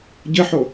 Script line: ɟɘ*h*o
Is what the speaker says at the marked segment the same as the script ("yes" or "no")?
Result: no